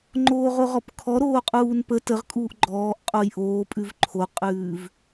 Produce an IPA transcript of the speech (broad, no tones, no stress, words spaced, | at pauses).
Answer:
ŋ͡ǃoːʁoʁɔpkʰɔ ɾoːqʼuːnpə təʁkʼuːʔ ɡ͡ǃɔːʔ qʼojʔoː pʼʉvǃʰoqʼʉːv